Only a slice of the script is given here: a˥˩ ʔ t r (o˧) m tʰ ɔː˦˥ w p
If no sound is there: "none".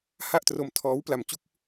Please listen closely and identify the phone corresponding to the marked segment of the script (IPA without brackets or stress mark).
o˧